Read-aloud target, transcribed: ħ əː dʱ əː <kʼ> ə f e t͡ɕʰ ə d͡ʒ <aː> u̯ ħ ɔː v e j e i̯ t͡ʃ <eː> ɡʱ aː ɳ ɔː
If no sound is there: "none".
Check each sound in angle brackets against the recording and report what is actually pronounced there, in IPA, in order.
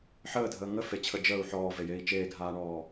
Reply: ŋ, əː, eː

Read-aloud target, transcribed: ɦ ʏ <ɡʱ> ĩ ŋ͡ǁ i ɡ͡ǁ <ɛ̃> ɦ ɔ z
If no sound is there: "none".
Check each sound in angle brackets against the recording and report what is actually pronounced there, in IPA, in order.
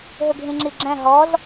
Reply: ɡʱ, ɛ̃

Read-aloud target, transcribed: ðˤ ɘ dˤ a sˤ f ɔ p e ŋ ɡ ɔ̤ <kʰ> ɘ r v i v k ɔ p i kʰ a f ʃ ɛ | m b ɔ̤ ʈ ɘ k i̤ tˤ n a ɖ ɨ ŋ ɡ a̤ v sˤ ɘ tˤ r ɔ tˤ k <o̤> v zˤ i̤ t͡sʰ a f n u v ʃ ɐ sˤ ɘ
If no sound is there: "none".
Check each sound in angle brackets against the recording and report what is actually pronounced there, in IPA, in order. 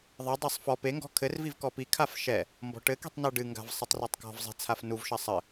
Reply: kʰ, ɔ̤

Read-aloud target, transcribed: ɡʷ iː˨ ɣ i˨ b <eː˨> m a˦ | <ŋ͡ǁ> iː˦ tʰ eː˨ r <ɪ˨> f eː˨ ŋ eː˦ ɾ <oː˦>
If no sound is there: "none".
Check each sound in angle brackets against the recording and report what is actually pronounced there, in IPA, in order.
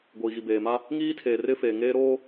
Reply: eː˨, ŋ, ɪ˦, oː˦

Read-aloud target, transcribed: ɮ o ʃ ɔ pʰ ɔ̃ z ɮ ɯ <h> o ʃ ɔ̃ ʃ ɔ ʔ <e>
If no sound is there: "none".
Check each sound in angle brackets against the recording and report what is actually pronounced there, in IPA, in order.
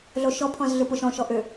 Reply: p, ø

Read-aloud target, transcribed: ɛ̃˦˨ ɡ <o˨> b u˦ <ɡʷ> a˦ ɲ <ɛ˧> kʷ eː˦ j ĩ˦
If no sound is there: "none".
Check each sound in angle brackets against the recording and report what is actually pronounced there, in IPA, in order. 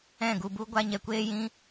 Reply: u˨, ɡʷ, ɛ˧

